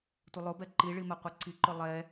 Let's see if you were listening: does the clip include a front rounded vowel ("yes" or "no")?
no